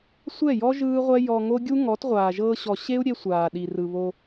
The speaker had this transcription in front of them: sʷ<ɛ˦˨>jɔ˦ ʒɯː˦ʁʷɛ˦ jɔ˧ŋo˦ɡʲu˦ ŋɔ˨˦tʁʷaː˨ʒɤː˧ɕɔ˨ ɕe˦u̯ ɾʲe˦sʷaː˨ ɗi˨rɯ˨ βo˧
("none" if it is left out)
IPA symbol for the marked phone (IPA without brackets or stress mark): ɛ˦˨